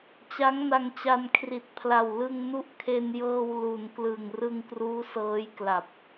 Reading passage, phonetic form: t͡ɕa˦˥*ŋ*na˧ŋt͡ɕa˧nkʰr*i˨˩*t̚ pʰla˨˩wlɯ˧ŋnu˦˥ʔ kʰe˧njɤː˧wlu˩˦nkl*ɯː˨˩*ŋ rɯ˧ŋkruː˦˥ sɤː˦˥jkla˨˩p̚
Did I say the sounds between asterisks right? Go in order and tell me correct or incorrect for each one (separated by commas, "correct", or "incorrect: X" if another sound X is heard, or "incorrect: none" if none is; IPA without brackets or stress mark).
correct, correct, incorrect: ɯ˨˩